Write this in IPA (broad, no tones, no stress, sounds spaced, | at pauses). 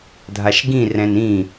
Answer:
dʱ a ʃ ɡ ĩ r ɛ̃ n ĩ